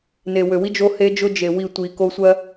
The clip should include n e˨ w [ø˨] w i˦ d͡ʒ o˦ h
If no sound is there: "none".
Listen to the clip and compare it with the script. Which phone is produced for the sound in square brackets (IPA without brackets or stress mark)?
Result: ø˨